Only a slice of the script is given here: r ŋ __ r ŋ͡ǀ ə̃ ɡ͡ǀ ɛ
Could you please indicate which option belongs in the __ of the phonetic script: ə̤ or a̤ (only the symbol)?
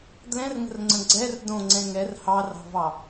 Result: ə̤